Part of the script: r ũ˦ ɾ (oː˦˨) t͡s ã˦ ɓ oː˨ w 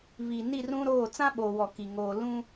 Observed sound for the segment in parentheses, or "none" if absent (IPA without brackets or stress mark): oː˦˨